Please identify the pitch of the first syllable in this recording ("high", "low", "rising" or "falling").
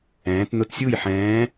rising